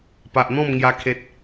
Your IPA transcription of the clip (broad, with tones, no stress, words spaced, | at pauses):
pa˨ʔn̪ɔ̃˥˧m ŋja˦kʰe˦t̚